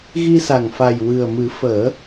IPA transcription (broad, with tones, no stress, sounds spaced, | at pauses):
ɣ i˧ s a˨˩ ŋ f a˨˩ j w ɨ˨˩ ə̯ m ɨ˨˩˦ f əː˨˩˦